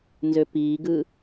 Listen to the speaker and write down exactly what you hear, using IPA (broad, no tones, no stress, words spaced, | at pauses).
nzøpiːɡɯ